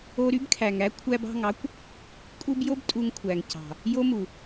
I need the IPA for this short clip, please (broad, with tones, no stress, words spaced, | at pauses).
o˧ɾy˦bkʰæ˨ŋæ˦ kʷʰæ˧bɑ̤˦˨ŋɑ˦kʷ | kʼu˦b jo˦b tʼu˧ŋkʷʰæ˨ŋ cɑ̤˨ | jo˦mu˨